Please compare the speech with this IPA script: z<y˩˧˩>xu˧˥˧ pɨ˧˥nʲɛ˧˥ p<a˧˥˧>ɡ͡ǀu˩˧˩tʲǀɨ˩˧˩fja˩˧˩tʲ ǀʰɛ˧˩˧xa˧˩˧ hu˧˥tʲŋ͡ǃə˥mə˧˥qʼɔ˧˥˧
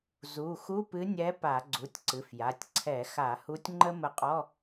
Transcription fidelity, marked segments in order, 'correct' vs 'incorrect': incorrect: u˩˧˩, incorrect: a˧˩˧

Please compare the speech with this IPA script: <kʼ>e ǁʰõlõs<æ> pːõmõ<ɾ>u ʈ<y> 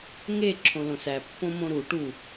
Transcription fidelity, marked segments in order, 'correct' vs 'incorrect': incorrect: ŋ, correct, correct, incorrect: u

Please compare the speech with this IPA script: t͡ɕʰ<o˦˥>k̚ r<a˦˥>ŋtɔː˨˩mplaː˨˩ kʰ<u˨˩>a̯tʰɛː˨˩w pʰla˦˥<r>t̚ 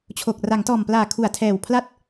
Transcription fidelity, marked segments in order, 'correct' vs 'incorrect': incorrect: o˨˩, incorrect: a˩˦, correct, incorrect: none

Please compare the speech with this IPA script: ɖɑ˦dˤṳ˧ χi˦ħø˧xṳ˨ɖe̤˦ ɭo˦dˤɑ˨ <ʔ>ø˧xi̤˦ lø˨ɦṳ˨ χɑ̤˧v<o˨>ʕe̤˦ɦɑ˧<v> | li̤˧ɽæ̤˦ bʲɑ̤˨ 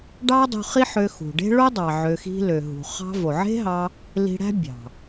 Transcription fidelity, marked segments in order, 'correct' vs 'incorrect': incorrect: ʕ, correct, incorrect: none

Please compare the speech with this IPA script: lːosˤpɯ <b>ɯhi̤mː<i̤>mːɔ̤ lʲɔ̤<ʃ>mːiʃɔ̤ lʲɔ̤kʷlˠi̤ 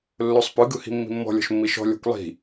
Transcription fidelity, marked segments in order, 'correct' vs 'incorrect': incorrect: ɡ, correct, correct

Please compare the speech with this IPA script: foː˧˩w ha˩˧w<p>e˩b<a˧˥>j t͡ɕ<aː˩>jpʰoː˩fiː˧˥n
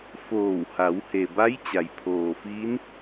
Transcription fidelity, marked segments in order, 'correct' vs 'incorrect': incorrect: h, correct, incorrect: a˩

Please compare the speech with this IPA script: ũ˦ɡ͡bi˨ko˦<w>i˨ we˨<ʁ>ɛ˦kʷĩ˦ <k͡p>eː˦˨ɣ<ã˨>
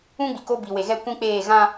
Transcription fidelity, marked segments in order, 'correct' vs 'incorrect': incorrect: b, incorrect: ɣ, correct, incorrect: ã˦

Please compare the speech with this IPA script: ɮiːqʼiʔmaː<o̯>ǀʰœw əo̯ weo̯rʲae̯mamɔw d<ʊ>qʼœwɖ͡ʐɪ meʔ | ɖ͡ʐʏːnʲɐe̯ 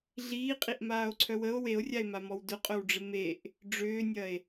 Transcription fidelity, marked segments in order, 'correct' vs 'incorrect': correct, correct

